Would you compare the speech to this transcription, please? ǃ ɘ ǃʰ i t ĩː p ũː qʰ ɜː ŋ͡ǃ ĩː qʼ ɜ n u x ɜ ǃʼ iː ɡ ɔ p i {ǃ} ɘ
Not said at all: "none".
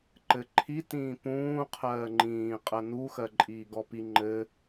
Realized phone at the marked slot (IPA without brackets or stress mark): ŋ͡ǃ